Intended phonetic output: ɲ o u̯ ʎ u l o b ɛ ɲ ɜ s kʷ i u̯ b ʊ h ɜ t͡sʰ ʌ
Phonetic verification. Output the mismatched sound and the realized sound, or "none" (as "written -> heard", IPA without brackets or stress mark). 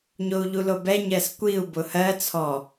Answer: ʌ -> ɔ